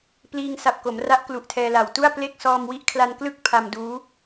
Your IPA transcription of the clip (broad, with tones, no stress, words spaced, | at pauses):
pliː˧ŋ sa˨˩p̚ko˩˦mra˦˥ʔ klu˨˩ʔtʰɛː˧la˨˩w tu˥˩a̯ple˥˩k̚ sɔː˧mwi˦˥ʔkʰla˧n klɯ˥˩k̚ pʰa˧mduː˦˥